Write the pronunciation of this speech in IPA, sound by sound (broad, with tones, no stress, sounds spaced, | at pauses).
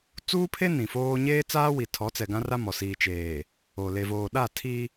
t͡s uː˦ pʰ e˦ n ĩ˨ f oː˦ ɲ eː˦ t͡s aː˦ w i˨ tʰ ɔ˨˦ t͡s ɛ˨ ɡ ã˦ r a˦ m ɔ˨ s iː˨ t͡ʃ eː˨ | o˨ l e˨ v oː˨ ɗ a˦˨ tʰ i˦